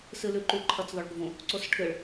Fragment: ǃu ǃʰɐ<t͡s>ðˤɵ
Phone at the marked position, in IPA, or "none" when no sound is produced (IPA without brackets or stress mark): t͡s